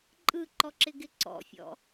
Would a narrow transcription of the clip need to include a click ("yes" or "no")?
yes